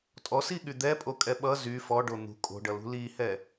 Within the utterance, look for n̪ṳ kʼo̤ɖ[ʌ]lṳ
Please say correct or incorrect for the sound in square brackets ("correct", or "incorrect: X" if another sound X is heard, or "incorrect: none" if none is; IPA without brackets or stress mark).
correct